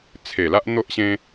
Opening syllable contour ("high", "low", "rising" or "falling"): low